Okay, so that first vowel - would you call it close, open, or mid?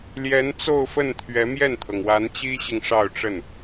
mid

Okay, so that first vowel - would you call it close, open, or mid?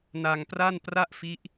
open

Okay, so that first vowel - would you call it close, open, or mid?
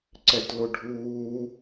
mid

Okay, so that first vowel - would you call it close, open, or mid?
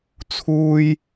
close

